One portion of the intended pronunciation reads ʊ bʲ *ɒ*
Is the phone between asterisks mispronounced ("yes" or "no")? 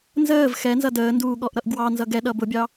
yes